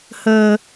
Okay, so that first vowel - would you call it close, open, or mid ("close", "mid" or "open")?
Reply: mid